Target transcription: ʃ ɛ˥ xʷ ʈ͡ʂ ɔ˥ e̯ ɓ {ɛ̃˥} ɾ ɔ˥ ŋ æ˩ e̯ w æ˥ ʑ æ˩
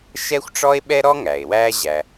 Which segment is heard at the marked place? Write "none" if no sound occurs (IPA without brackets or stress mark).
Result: ɛ˥